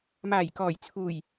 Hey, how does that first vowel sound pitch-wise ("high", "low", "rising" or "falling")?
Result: low